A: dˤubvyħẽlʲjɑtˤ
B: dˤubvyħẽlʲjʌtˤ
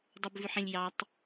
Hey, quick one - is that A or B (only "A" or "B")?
A